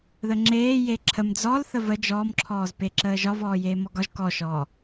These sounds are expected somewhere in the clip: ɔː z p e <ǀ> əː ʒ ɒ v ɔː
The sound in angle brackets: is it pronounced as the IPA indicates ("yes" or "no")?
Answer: no